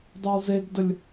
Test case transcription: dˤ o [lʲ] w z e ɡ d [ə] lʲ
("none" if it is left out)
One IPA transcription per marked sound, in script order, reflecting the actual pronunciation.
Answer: none, ə

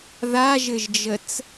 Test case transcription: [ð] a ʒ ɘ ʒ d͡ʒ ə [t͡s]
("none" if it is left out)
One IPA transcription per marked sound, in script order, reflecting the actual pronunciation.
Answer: ð, t͡s

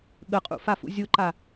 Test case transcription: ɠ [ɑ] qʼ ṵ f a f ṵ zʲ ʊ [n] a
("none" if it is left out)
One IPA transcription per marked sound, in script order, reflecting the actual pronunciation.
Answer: ə, ǃ

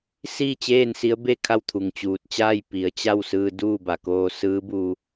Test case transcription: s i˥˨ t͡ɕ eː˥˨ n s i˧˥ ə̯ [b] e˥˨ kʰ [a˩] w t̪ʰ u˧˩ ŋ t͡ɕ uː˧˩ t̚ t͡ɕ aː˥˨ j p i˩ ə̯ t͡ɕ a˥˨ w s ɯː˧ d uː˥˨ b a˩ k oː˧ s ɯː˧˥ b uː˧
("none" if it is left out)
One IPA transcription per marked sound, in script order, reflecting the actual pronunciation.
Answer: b, a˥˨

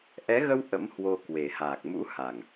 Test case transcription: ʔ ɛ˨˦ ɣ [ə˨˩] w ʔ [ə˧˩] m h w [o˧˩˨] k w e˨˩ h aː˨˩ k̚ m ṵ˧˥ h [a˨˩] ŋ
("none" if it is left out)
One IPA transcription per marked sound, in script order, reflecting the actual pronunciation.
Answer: ə˧, ə̰˧˥, o˧, a˨˩

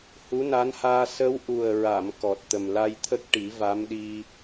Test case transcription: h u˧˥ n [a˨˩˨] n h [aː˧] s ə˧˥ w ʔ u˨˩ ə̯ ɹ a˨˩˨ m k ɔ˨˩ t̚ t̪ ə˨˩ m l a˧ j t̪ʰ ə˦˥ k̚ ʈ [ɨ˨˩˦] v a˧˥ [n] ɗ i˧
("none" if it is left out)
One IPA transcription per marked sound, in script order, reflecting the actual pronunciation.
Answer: a˧˥, aː˧, i˨˩˦, m

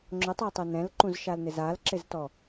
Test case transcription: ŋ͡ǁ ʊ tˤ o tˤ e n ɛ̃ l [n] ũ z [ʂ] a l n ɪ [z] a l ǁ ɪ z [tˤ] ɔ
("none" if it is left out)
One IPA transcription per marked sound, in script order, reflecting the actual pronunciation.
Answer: ǃ, ʃ, z, t

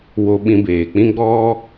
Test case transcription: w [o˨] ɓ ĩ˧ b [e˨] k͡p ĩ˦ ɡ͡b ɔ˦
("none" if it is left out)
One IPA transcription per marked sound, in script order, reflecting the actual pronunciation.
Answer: o˧, eː˨

